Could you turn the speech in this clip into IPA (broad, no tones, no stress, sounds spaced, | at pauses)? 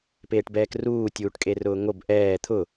p eː ʈ b ɛː k r uː tʲ uː ʈ kʼ e r ʊː ŋ o b ʔ ɛː t̪ʰ ʊ